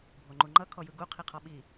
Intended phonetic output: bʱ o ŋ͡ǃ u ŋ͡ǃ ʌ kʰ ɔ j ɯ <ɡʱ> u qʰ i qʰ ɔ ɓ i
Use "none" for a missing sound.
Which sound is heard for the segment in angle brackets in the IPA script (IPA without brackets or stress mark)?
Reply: ɡ